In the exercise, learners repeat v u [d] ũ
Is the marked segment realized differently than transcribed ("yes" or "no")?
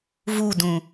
no